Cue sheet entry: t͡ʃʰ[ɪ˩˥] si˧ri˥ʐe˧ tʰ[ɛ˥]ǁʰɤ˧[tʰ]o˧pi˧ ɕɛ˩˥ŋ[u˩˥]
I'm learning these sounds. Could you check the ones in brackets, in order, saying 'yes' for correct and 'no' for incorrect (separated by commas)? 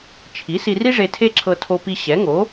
no, no, yes, no